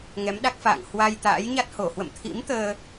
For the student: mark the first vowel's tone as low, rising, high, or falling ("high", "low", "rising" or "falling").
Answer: rising